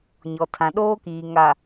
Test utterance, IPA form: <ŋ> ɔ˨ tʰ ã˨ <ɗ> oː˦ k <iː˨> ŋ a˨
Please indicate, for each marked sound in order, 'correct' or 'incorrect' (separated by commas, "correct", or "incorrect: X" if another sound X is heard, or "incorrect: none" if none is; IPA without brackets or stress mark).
incorrect: ɲ, correct, correct